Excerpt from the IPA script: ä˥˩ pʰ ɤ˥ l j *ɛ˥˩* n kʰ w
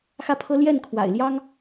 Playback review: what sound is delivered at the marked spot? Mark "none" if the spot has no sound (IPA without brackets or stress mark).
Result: ɛ˥˩